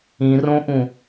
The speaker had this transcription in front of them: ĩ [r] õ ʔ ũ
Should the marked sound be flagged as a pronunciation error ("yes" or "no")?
no